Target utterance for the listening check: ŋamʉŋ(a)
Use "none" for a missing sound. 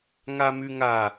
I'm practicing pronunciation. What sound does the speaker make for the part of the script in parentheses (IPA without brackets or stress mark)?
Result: a